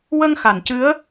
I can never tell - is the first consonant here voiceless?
no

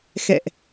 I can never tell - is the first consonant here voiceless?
yes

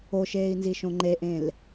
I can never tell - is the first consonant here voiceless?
yes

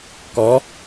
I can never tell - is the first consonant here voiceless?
yes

